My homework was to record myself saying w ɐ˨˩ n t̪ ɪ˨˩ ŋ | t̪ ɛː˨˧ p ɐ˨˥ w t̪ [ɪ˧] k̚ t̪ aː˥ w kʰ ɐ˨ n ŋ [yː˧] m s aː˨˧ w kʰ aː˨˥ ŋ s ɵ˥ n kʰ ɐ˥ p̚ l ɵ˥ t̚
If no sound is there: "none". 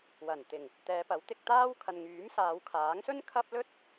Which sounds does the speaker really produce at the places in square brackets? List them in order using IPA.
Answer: ɪ˧, yː˨˥

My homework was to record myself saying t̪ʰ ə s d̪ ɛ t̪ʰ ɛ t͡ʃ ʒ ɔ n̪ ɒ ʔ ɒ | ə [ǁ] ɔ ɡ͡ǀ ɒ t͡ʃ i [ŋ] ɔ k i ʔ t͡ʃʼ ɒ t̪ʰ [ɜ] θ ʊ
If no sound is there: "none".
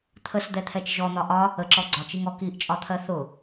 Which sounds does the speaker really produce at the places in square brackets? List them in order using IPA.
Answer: ǁ, ŋ, ɜ

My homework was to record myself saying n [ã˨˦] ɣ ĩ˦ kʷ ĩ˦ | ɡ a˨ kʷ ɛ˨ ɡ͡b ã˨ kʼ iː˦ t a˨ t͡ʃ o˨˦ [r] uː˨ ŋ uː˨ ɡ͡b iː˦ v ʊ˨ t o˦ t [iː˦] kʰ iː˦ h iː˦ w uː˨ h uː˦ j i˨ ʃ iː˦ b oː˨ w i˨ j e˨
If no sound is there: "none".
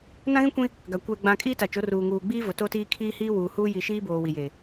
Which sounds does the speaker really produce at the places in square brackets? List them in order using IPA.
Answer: ã˦, r, iː˦

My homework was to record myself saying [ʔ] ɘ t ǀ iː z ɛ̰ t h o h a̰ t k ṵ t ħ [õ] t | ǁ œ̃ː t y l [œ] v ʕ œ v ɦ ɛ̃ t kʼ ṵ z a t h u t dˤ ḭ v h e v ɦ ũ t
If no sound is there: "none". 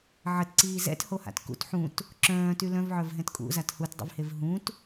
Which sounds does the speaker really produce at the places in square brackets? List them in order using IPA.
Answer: ʕ, ũ, œ̃

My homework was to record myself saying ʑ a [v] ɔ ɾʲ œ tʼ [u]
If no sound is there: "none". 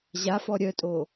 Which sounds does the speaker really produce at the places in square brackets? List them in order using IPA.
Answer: f, o

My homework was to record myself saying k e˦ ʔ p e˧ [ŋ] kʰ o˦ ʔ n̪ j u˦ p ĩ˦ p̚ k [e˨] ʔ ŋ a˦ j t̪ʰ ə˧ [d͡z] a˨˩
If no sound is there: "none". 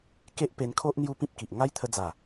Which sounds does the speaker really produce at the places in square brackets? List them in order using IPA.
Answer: n, i˨, d͡z

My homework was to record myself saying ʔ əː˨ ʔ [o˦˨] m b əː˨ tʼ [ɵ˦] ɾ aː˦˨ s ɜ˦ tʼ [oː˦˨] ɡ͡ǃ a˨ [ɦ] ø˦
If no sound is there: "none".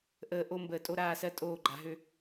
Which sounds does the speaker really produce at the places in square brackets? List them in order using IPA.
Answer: o˦, o˦, oː˦˨, ɦ

